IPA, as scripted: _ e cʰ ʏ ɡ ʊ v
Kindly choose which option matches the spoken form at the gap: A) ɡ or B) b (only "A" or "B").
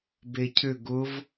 B